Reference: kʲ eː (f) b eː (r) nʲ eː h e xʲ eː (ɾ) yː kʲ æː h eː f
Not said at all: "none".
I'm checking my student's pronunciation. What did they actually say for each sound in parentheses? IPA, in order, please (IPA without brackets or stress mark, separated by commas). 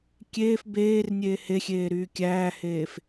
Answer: f, r, ɾ